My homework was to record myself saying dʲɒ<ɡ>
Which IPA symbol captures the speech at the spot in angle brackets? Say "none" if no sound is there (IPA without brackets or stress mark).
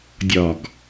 ɡ